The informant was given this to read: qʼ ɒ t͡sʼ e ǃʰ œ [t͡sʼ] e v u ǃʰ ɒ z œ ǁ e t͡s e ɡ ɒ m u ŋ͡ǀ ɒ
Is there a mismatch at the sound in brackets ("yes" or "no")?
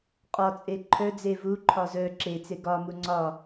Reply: yes